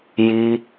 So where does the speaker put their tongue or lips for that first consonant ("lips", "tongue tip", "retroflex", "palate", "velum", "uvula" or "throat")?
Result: palate